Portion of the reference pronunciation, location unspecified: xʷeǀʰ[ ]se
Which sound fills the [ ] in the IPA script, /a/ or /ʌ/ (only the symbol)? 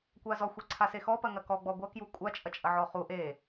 a